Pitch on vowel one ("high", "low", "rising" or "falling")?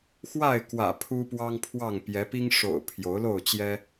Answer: falling